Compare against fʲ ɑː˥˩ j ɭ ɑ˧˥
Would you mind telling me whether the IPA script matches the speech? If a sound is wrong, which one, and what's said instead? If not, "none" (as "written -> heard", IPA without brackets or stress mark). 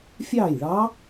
none